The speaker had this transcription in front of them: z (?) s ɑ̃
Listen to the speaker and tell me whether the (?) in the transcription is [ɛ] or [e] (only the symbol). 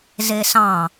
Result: e